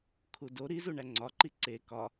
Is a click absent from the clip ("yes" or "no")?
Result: no